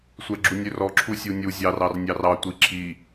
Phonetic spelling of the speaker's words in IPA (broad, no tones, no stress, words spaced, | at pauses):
sʷɛɡ͡ǁunʲørɔ ǁʰusʲunʲu zʲɑr ɑrnʲɑrɑ tʷiǁʰi